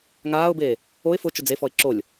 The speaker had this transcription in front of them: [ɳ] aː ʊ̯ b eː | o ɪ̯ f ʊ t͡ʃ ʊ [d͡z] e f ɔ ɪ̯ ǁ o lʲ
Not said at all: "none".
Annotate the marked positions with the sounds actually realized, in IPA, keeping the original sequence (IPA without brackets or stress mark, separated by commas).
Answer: ŋ, d͡z